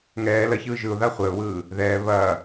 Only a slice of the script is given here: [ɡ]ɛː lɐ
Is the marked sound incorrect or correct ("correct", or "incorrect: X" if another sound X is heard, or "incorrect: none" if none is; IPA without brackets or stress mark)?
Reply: incorrect: ŋ